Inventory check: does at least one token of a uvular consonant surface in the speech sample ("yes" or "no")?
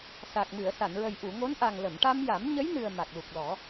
no